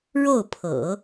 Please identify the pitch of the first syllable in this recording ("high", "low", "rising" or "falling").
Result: falling